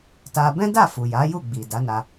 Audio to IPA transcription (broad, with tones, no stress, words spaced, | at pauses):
ta˧ bɛ̃˦da˦˨ fu˨ja˨˦ju˦˨ɡ͡bi˨ da˨˦na˧